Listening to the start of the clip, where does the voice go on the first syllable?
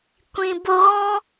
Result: low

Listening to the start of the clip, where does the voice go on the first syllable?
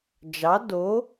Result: rising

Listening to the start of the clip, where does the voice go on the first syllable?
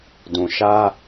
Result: low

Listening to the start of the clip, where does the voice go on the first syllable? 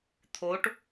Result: rising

